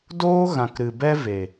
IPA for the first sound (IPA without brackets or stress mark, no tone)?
d